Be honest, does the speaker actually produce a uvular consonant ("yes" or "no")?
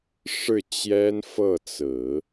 no